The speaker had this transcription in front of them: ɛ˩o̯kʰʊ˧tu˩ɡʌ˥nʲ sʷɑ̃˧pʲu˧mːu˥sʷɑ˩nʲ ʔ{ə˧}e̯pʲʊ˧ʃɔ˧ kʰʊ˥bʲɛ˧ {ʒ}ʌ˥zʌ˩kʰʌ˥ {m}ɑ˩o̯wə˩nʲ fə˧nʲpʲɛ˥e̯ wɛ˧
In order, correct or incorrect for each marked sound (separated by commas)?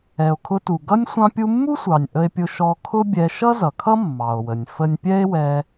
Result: correct, incorrect, incorrect